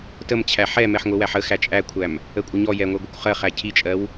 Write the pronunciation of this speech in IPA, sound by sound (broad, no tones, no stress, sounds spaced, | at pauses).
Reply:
t ə m t͡ɕʰ æ ħ ɛ m ɛ ħ ŋʷ ɪ w æ ħ ə x æ t͡ʃʼ æ kʷʰ æ m | ə kʷʼ ɪ ɲ ɔ j ɛ ŋʷ ɛ ɡʷ ə kʷ χ ɜ χ æ cʰ i t͡ʃʼ ɜ w